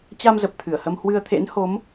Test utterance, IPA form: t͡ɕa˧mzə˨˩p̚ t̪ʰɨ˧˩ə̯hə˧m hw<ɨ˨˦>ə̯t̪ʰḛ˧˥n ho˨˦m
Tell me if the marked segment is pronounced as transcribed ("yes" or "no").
no